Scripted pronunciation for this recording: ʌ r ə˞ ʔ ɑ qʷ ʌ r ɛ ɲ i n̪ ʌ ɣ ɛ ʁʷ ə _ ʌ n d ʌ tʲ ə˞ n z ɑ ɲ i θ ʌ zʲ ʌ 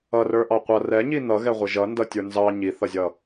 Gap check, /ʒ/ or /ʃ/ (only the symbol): ʒ